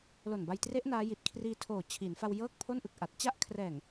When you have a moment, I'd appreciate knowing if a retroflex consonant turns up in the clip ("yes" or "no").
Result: no